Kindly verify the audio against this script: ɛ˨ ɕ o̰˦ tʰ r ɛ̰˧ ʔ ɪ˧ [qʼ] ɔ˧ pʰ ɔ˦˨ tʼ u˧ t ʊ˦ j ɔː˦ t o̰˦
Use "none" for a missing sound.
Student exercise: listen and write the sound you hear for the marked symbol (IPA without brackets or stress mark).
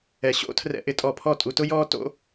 tʼ